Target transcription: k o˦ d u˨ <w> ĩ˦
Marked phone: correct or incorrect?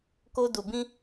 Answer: incorrect